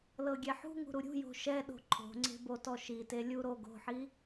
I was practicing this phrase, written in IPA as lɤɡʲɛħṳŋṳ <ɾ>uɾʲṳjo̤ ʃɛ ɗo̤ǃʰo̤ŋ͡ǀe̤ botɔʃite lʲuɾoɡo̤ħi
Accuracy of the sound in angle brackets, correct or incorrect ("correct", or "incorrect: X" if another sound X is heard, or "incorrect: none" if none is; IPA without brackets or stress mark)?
correct